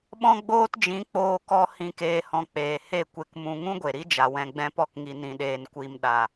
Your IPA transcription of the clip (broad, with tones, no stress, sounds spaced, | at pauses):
ɓ ɔ̃˦ ɡ͡b oː˦ t d͡ʒ ĩ˨˦ k͡p oː˧ k ɔ˧ h ĩ˦ k eː˧ h ɔ̃˧ k͡p eː˨ h e˦˨ kʷ e˧ k m ũ˧ ŋ ũ˦ ɡʷ e˨ ɾ i˦ d͡ʒ a˨ w ɛ̃˧ ɡ͡b ɛ̃˦ p ɔ˦ k ŋ i˧ n ĩ˧ ɗ eː˧ n kʷ i˦ m ɗ a˨